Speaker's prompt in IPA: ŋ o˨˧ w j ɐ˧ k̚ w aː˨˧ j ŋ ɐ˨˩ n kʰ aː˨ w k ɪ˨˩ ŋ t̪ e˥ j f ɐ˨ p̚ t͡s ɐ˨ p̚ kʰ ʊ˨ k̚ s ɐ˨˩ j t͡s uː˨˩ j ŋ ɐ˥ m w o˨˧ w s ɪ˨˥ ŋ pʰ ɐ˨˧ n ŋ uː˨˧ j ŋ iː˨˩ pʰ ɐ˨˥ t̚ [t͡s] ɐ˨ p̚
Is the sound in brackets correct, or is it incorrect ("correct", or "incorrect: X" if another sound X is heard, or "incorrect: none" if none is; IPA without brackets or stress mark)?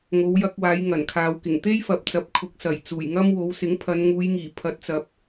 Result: correct